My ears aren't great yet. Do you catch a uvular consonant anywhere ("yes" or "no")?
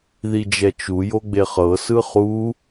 yes